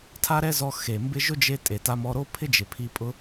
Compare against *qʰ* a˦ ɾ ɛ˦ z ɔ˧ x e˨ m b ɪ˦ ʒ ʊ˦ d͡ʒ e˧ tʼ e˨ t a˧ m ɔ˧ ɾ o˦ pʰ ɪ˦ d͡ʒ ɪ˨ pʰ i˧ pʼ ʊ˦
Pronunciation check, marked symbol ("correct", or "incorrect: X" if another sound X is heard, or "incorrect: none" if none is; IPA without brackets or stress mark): incorrect: tʰ